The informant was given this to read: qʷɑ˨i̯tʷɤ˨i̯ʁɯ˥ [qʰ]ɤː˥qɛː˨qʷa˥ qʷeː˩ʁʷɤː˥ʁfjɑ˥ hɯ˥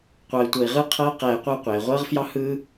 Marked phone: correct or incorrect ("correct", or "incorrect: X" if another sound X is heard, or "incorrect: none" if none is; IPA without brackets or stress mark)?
correct